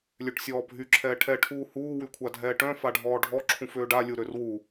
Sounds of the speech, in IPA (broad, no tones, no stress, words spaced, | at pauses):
lʲøʈsʲɔːbʱy ǁʰɛːʈʰɛ ʈʰuːhuː wykʷʰadʱɛːʈœ̃ faɖʱɔːɖʱɔ ǁʰũføːɖa lʲuɾørwu